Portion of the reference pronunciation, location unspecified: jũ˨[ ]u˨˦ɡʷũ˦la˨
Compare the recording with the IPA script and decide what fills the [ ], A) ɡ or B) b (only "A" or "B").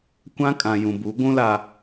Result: B